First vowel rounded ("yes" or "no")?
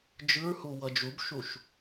no